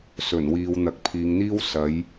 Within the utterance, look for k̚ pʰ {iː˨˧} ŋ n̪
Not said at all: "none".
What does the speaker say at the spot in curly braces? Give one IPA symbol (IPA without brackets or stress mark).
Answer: iː˨˧